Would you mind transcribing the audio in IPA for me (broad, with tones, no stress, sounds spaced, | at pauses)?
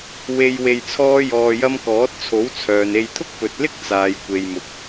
w e˨ j w e˧ j t͡sʰ ɔː˥ j ɔː˧ j ɐ˥ m k ɔː˨˥ t̚ t͡sʰ o˨˥ w t͡sʰ œː˨ n e˧ j t̪ʰ ʊ˥ k̚ p ɵ˨ t̚ l ɪ˥ k̚ t͡s aː˨ j kʷ e˨ j m ʊ˨˥ k̚